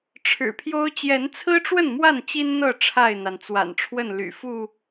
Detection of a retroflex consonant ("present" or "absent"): present